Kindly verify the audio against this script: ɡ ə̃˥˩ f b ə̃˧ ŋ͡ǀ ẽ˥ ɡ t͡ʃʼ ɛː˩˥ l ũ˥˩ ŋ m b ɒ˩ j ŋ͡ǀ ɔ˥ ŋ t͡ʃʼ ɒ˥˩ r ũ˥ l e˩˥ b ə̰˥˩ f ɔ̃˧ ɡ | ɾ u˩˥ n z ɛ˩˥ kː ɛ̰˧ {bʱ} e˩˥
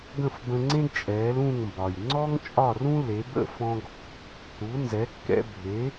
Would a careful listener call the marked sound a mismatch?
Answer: no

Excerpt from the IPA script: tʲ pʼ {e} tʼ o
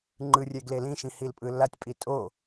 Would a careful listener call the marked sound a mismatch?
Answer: yes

